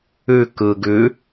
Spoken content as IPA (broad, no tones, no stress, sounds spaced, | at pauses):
ʉ k ɯ ɡ ʉ